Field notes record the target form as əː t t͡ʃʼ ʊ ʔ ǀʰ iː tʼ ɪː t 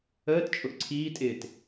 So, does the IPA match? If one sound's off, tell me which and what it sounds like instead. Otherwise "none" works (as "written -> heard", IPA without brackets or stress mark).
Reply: none